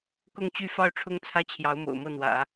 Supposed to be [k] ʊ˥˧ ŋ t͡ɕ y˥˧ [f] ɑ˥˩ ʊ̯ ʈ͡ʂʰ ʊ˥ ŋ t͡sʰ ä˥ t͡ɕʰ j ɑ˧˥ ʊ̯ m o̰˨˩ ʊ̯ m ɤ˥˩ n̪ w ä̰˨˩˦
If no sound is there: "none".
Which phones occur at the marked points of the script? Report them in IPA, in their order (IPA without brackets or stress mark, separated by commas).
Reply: k, f